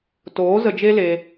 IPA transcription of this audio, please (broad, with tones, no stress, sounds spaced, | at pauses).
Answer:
t oː˨˦ z ə˧ d͡ʒ e˦ l e˧